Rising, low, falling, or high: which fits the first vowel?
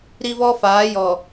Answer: high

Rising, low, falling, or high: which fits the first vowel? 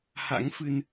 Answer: rising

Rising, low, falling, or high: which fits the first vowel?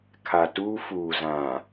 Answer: low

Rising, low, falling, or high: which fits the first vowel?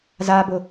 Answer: low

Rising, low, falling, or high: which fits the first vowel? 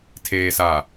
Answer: low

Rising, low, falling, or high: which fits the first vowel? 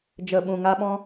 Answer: low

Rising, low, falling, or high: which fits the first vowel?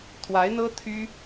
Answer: rising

